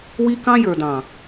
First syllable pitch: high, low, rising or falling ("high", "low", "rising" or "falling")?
high